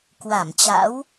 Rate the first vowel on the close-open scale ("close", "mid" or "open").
open